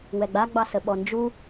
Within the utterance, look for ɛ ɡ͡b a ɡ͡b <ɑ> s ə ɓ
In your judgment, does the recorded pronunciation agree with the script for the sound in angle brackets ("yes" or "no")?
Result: yes